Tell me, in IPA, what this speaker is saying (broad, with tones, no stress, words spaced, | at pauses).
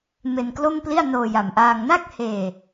me˧nklo˥˩mpli˥˩a̯ noː˧ja˨˩mʔaː˧ŋ na˥˩k̚heː˧